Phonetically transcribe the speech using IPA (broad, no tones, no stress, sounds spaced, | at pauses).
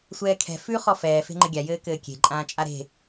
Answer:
sʷ ɛː kʰ ɛ̤ f ʉ χ ɔ f ɛː f e̤ ŋ͡ǃ ɘ ɡʲ a j ɘː k ɘː kʲ e̤ ǃʼ ãː t͡ʃʼ a ɾ e̤